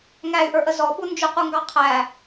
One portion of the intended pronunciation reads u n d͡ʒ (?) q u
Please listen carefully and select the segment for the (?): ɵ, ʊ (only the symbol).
ʊ